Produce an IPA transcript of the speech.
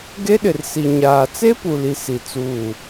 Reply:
ɡ e˦ ɗ ɪ˨ r s i˨ ɲ aː˨ t͡s e˦ p u˨ l i˨ s i˨ t͡s uː˦˨

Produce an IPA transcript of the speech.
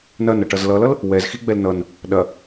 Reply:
n ɐ n ʌ ʈ ʌ z l ʌ l ʌ l | w ɛ z x i ɡ͡b ɛ l n ʌ n | ɗ ɐ

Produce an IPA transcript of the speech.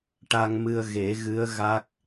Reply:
ʈ a˧ ŋ m ɨ˧ ə̯ ɣ e˨˩˦ ɣ ɨ˧˥ ə̯ ɣ a˦˥ k̚

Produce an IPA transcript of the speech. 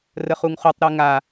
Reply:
r ə χ u ŋ χ u tˤ ɾ ɨ ŋ a

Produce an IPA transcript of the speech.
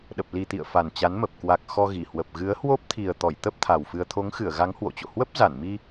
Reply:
ɗ ə˨˩ p̚ l i˨˩ t̪ ḭ˧˨ ə̯ f a˨˩ n t͡ɕ a˨˦ n m ə˨˩ p̚ k w a˨˩ k̚ x ɔ˧ ɣ i˧˩ h w ə˨˩ p̚ ɣ ɨ˨˦ ə̯ h w o˦˥ p̚ t̪ʰ i˨˩ ə̯ t̪ ɔ˧˩ j t̪ ə˦˥ p̚ t̪ʰ a˨˩ w f ɨ˧ ə̯ t̪ʰ o˨˦ ŋ x ɨ˧˩ ə̯ ɣ a˨˦ ŋ h w o̰˧˨ t͡ɕ o̰˧˨ h w ə˦˥ p̚ z a˧˩ n m i˧

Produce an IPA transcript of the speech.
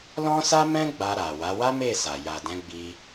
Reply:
l ɔ̃˦ s a˦ m ɛ̃˦ ɡ͡b a˧ ɾ a˨ w a˨˦ w a˦ m e˦˨ s a˨ j a˨ d ɛ̃˨˦ ɡ͡b i˧

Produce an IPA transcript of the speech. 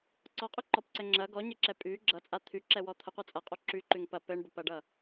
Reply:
ǀ ɔ qʼ y ǃ ɔ p ǀ ɛ ŋ͡ǁ ɐ ɡ ɔ ɲ ɘ ǁ ɛ pʼ y ɡ͡ǁ ʌ t͡sʼ a t̪ʰ y ǁ ɛ w ɔ t̪ʰ ə qʷ ʌ t͡sʼ ɐ qʼ o ǁ y ǃ y ŋ p ɐ p ɘ ɳ b ə p ɐ ɖ ʌ

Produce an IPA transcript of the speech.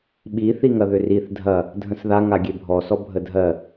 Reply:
ɓ i θ i ŋ ɐ ð ʏ r i θ dʱ ɐ | dʱ ə̃ s ð a ŋ a ɡʲ e bʱ ɔ s ɔ bʱ ə dʱ ɜ

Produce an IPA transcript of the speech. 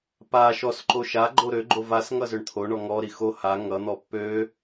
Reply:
p a ʃ ɔ s ǃ o ʃ a ɡ͡ǃ o ɾ ø ɡ͡ǃ o v a s ŋ ʌ z ø ɳ t̪ʰ o ɳ ɔ ŋ ɔ ɾ i x o h a ŋ ʌ n̪ ɔ pː ø

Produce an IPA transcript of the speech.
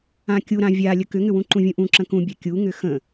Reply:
ã kʲ u ɾ ã vʲ a lʲ ə k ʏ ŋ ʏ w ũ ǃ ũ vʲ ũ ʔ ũ ǁ ə̃ k ũ bʲ a kʲ u ŋ ʏ x ə̃

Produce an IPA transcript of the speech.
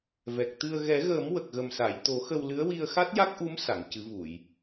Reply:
v ɛ˨˩ k̚ t̪ ɨ˧ ə̯ ɣ ɛ˨˩˦ ɣ əː˨˩˦ m w ə˨˩ k̚ ɣ ə˨˩ m s a˨˩˨ j t̪ o˨˩˦ x ə˧ w l ɨ˧˥ ə̯ w i˧ ə̯ x a˦˥ t̚ j a˦˥ k̚ ʔ u˧˥ m s a˨˩˨ ŋ c ɨ˨˩˦ v u˨˩˨ j

